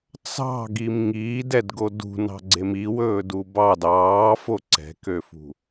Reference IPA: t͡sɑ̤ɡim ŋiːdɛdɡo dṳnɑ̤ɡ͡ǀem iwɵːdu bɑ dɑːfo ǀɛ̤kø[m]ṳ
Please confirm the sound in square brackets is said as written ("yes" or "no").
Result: no